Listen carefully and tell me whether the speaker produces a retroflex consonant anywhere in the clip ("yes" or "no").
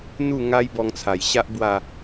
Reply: no